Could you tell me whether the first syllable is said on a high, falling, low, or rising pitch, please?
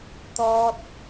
high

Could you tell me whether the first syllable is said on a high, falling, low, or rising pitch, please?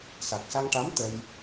low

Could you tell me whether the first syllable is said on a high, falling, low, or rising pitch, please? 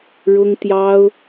high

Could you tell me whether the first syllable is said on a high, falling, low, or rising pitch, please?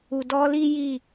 low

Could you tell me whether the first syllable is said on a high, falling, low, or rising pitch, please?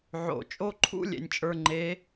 low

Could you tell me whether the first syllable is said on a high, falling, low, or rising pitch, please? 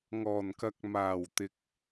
low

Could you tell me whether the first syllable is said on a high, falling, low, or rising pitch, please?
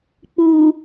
low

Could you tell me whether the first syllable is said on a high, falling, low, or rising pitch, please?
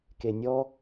low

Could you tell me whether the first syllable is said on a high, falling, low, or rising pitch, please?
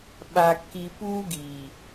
low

